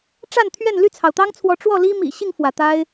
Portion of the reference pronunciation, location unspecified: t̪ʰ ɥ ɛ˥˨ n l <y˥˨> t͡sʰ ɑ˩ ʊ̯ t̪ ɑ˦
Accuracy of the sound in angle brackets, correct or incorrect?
correct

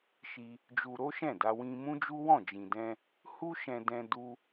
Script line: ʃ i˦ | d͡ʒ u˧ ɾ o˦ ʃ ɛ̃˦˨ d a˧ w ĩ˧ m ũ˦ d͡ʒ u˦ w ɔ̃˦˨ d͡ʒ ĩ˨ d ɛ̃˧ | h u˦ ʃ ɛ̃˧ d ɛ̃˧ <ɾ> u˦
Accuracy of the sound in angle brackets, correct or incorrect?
incorrect: d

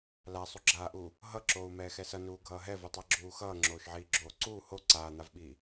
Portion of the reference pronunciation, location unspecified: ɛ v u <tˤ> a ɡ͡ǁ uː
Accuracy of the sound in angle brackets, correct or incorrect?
correct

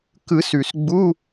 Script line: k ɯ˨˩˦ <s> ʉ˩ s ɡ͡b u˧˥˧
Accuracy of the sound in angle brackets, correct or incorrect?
correct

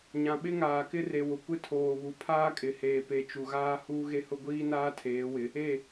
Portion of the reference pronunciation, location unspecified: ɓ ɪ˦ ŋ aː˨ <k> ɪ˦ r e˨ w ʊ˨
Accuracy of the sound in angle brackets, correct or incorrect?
correct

